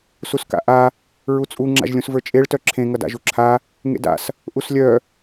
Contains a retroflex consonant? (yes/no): yes